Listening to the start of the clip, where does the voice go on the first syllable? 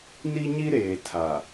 high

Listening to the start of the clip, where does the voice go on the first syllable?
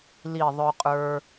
falling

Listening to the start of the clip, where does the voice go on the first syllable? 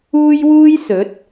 high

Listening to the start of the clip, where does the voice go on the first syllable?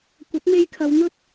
rising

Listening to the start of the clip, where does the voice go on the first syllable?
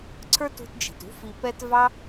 high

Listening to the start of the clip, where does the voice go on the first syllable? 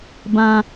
low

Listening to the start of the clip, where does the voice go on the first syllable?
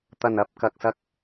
low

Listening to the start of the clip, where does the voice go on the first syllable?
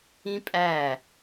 high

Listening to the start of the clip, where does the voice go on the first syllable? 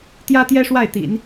high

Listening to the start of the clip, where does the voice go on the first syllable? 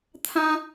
high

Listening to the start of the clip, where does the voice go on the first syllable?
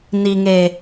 low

